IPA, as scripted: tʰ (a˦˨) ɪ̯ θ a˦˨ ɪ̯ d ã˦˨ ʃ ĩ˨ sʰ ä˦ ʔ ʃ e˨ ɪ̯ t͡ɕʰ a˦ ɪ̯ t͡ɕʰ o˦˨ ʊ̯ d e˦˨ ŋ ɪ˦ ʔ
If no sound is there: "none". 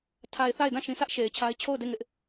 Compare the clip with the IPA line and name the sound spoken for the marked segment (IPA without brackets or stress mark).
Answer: a˨